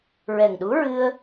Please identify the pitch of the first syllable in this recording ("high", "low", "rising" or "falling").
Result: low